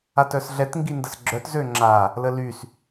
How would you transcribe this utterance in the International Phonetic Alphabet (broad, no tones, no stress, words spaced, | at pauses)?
atœsɮɛt ŋɡindəsɡ͡ǁœt zøŋ͡ǁa | ləlys